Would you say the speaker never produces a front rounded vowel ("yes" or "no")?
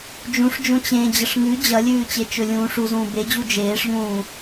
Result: yes